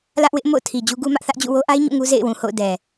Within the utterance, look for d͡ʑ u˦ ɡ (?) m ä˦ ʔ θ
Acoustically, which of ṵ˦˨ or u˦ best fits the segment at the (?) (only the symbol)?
u˦